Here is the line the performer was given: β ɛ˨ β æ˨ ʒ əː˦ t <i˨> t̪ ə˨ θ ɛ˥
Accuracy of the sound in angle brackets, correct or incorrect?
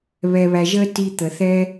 correct